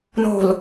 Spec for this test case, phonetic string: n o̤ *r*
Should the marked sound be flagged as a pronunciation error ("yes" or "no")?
yes